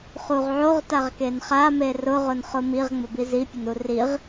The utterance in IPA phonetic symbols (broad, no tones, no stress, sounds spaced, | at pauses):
χ u ʁ ʕ o ʁ t a ʁ k e n χ a m e r ʊ ʁ ʊ n χ ʊ m i ʁ ŋ͡m ʊ b i z i pʲ ʊ n u r i ʁ